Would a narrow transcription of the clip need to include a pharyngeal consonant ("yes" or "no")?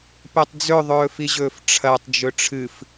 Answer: no